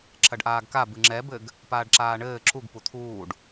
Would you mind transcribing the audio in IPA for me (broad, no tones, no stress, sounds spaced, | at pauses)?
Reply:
ǁ ɐ ɖ ʔ aː ɡ k a b ɨ ŋ͡ǁ ɛ b ɘ ɡ | p aː ɖ ǁ aː ɳ ɘː ǁ u ɡ p u t̪ʰ uː ɖ